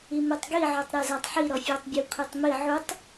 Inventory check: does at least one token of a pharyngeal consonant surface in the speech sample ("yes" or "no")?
yes